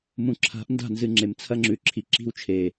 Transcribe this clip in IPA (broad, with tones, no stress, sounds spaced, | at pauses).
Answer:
m ũ˨ ǁʰ a̤˨˦ ʔ n d a̤˦˨ n z ɨ˨ ŋ͡ǁ e˨ m t͡sʰ ɐ˦ ŋ͡ǁ ʉ˨ ǁʰ i˨ ǁ i̤˦˨ w t͡ʃʰ e˨